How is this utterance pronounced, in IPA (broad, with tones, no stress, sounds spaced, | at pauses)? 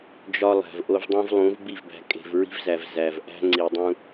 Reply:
d͡ʒ ɒ˦ lˠ æ̤˨ v ʔ o˦ v dˤ ũ˦ v lˠ ũ˨˦ v b i˦˨ v b æ̤˨ kʼ e̤˨ v ɹ i̤˦ v z æ˨ v z æ˨ v ʔ æ̤˦ ŋ͡ǀ i˨ dˤ ũ˦